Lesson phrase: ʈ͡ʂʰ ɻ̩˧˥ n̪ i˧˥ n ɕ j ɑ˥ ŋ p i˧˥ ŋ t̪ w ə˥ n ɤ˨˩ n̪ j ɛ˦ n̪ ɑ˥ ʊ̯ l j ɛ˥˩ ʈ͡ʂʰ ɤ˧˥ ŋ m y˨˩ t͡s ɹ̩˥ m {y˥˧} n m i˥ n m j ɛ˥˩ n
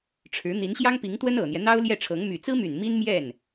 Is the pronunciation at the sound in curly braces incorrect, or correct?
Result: incorrect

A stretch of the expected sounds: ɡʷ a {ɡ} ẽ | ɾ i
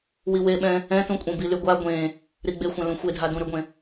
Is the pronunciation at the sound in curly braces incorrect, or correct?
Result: incorrect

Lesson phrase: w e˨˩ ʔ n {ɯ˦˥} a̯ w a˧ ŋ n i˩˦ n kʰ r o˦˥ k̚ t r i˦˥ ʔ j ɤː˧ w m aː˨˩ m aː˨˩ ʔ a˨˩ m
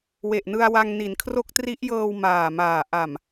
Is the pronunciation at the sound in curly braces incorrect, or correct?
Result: incorrect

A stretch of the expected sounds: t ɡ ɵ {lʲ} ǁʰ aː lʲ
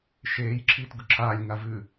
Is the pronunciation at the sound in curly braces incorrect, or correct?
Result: incorrect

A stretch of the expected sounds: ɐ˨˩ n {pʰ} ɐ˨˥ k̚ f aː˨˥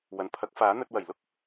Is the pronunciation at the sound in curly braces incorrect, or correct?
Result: correct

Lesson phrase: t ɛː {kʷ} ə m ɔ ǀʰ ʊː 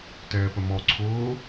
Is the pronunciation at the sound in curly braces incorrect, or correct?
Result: incorrect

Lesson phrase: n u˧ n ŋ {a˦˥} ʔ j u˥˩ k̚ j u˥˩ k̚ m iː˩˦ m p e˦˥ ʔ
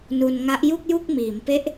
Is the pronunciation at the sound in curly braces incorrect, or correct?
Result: correct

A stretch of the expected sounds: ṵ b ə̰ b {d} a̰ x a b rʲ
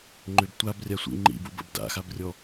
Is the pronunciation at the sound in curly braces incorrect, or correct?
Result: correct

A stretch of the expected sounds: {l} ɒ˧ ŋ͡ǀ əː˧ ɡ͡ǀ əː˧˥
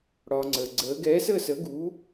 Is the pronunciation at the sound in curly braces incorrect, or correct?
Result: incorrect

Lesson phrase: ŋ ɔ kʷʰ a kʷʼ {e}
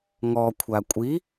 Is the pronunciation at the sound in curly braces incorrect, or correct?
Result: incorrect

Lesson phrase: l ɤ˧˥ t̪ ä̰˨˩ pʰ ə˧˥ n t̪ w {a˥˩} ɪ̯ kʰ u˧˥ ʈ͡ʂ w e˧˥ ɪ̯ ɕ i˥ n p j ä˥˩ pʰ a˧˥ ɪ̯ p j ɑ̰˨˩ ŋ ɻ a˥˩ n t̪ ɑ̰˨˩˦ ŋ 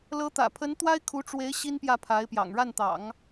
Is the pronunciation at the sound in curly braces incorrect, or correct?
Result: incorrect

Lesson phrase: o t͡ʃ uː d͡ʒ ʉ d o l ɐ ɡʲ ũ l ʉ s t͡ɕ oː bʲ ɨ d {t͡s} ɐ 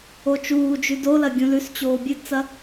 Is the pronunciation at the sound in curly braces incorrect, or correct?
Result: correct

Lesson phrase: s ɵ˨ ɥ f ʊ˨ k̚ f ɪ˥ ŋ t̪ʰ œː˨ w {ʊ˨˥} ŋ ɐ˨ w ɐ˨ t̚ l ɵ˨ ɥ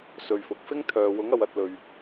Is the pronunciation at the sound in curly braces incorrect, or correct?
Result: correct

